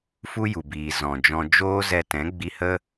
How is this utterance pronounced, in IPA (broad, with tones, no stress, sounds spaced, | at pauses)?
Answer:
f u˦ j u˨ b iː˨ z ɔ̃˨ d͡ʒ ɔ̃˧ d͡ʒ oː˦ z ɛ˧ t ɛ̃˨˦ ɡ͡b i˧ h ə˦